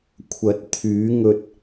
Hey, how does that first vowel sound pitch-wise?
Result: rising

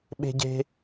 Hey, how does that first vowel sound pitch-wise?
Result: high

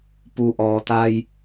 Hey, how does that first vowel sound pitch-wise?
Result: low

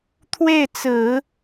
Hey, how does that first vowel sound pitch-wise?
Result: falling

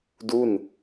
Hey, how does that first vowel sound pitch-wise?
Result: falling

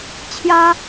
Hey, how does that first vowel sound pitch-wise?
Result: high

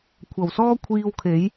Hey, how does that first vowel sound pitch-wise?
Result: low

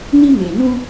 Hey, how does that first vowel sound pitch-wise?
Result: high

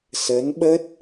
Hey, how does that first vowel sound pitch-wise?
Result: rising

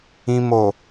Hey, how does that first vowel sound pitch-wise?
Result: low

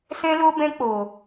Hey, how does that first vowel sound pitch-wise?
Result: high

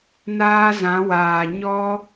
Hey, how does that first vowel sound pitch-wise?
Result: high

